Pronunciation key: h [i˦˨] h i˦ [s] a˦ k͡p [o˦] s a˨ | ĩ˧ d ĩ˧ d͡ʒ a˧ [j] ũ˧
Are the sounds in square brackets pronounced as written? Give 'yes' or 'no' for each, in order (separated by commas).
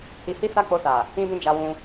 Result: no, yes, no, no